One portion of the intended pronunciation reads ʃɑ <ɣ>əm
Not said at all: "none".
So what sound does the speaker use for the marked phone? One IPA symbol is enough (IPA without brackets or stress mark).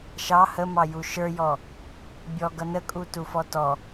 h